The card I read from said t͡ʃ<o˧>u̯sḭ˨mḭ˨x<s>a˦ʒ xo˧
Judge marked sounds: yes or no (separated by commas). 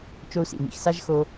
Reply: yes, yes